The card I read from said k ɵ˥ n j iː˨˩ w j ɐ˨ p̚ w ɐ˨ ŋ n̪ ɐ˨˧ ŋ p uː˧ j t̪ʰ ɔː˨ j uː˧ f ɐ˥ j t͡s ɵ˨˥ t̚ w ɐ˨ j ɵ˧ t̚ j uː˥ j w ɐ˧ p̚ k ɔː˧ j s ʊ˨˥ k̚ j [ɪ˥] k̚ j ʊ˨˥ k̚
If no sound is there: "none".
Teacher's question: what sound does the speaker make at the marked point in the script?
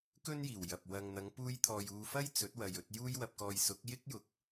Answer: ɪ˥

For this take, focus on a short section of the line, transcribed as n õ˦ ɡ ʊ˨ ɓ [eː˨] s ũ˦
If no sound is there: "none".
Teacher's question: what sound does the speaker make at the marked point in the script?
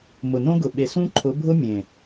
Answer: e˨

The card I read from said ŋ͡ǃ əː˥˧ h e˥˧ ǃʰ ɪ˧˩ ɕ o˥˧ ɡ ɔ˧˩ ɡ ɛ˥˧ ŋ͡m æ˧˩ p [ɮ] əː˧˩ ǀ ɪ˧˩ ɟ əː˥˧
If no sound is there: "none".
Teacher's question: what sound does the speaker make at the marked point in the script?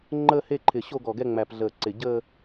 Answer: ɮ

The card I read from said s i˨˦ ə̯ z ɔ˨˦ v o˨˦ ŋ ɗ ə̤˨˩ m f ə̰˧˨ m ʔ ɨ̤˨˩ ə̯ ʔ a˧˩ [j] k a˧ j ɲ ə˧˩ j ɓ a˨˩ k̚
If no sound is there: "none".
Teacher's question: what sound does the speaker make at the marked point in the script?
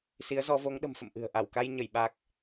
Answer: w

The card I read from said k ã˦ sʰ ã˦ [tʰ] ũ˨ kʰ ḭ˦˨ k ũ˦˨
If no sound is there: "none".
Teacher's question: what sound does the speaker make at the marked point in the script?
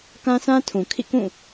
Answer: tʰ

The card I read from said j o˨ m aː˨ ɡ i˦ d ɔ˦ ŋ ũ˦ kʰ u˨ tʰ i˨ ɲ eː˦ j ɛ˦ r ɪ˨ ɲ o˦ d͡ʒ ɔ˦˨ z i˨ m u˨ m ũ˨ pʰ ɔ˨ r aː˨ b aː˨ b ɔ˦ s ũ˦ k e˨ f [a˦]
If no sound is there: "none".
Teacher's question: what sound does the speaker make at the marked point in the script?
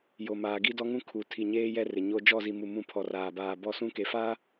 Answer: aː˦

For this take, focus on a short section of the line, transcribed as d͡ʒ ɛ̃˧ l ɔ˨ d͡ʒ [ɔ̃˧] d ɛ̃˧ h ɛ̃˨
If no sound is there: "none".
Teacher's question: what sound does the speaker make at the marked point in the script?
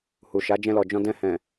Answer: ɔ̃˧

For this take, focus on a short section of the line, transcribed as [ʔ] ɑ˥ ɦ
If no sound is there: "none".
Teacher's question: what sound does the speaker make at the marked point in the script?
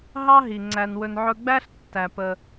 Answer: ɦ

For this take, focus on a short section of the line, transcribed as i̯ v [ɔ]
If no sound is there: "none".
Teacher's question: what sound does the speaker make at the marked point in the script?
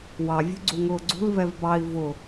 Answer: ʊ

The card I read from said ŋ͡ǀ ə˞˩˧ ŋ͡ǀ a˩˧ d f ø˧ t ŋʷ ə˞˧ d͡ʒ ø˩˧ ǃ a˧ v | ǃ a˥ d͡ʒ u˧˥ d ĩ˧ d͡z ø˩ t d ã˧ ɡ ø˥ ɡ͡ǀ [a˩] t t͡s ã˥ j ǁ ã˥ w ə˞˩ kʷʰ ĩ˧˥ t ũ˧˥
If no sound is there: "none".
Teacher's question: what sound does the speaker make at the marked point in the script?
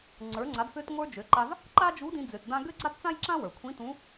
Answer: a˥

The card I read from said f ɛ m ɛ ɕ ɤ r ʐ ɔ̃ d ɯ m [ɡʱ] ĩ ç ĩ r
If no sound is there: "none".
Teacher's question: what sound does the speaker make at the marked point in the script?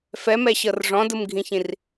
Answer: ɡʱ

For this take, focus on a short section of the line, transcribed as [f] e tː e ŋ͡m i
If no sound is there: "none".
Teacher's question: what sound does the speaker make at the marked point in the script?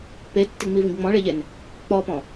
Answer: p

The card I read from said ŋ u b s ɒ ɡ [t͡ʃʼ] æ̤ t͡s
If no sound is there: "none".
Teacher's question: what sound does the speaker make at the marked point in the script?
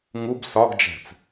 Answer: d͡ʒ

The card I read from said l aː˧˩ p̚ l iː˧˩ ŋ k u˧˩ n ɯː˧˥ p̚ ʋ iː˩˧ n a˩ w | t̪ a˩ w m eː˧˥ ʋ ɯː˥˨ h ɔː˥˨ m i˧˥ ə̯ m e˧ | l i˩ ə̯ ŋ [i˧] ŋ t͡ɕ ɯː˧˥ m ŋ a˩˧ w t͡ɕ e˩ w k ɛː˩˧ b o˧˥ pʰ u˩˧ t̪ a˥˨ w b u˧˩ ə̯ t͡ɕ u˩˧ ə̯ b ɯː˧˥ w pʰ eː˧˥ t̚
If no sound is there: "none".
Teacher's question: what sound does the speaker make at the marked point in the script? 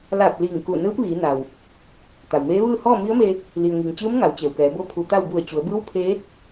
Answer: i˩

